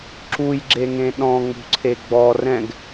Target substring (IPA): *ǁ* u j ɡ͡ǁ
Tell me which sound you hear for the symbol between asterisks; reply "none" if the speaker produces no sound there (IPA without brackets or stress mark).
ǁ